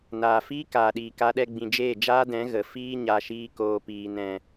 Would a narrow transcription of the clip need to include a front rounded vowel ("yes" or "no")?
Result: no